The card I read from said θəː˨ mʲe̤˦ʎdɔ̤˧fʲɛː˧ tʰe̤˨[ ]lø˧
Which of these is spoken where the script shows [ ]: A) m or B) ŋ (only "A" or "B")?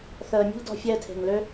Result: B